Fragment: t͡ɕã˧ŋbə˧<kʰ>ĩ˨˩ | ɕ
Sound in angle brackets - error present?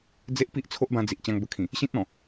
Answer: no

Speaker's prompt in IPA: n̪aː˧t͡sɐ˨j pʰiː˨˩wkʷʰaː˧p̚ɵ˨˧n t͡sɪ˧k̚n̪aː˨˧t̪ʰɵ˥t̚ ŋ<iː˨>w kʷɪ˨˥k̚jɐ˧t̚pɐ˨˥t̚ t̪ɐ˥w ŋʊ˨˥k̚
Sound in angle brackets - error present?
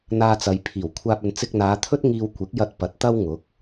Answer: yes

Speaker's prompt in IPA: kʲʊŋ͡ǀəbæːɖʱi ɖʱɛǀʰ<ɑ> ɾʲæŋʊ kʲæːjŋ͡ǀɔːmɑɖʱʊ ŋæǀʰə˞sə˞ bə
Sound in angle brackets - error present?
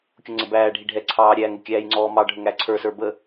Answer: yes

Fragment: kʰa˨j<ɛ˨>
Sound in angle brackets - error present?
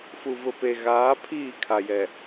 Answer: no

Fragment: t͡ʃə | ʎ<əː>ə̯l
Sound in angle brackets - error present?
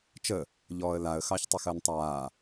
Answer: yes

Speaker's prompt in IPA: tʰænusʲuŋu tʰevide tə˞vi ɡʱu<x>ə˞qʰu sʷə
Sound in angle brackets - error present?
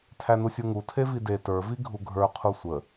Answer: yes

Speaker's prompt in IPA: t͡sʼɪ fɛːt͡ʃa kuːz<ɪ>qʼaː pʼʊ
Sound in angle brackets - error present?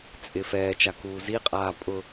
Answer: yes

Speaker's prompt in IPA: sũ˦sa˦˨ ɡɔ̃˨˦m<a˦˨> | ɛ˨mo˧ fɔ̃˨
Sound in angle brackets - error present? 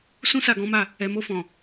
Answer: no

